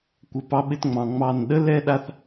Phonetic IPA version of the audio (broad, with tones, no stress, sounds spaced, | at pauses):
kʷ ɘ˧ p ɑ˦ ɓ ɪ˦ t ŋ͡m ɑ̃˨ ŋ͡m ɑ˦˨ n ɗ ə˦ l ɛ˦ ɗ a˦ θ